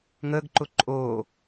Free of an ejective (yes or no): no